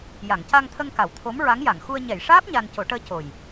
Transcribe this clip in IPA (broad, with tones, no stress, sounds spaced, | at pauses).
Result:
j a˨˩˨ ŋ c a˧ ŋ t̪ʰ ə˧ ŋ k a˨˩˨ w t̪ʰ o˧˥ m ɹ a˧˥ ŋ j a˨˩˨ ŋ x u˧ ə̯ ɲ ɛ˨˩˨ j ʂ aː˦˥ p̚ ɲ a˧ n c o˨˩˦ ʈ əː˧˥ c o˨˩ j